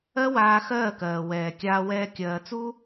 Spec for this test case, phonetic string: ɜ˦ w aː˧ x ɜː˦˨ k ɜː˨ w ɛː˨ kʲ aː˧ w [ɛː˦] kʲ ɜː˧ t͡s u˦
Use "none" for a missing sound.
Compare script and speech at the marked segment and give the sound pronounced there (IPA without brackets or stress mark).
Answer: ɛː˦